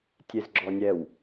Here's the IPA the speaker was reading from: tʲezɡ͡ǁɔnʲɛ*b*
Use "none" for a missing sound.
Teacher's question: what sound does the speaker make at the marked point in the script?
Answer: w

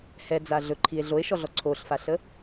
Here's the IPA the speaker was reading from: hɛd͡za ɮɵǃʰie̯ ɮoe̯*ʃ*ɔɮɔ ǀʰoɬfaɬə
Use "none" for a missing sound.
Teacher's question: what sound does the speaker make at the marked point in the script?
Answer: ʃ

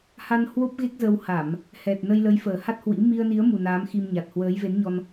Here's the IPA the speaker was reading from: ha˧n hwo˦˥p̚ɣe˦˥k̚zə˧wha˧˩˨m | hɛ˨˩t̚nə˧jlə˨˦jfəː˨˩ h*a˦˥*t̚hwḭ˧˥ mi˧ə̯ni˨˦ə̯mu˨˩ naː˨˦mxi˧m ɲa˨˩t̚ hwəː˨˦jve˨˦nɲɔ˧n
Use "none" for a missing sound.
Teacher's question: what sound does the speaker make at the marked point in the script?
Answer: a˦˥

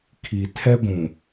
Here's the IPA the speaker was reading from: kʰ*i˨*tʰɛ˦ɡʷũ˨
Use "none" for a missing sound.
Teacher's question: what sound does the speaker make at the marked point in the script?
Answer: i˨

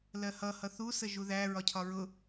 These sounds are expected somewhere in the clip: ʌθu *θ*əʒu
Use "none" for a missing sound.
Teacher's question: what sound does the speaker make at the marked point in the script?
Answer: s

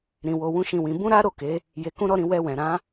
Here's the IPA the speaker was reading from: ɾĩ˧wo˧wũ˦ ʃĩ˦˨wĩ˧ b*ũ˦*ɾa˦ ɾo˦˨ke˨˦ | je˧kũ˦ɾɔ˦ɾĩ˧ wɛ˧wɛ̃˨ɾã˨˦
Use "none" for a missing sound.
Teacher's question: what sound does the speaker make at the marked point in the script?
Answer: ũ˦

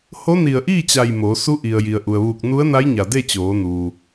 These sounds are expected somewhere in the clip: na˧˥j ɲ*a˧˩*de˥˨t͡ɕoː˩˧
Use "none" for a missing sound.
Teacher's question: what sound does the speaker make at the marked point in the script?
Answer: a˧˩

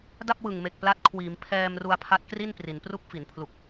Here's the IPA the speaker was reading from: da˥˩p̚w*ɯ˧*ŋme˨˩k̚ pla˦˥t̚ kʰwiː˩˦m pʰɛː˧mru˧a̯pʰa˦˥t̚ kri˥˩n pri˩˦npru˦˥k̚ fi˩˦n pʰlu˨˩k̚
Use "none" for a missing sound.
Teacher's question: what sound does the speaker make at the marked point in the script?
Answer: ɯ˨˩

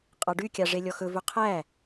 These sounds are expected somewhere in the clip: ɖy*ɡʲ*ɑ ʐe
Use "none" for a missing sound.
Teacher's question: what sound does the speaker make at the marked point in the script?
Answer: kʲ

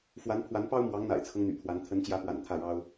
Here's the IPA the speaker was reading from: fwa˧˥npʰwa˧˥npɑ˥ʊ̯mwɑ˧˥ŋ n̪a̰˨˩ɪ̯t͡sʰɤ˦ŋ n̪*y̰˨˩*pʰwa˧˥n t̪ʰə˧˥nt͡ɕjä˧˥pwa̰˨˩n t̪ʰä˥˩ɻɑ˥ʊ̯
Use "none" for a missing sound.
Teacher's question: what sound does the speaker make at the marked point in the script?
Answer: y̰˨˩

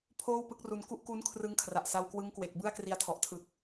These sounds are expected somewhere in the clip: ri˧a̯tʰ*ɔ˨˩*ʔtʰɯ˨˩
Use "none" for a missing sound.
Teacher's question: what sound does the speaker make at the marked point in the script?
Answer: ɔ˨˩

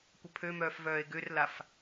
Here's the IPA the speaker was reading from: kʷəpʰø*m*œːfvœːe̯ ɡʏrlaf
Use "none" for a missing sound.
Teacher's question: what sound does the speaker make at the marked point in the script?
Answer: m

